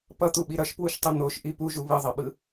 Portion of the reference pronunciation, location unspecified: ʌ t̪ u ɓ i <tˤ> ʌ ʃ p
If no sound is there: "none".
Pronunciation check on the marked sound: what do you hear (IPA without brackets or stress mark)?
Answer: ɾ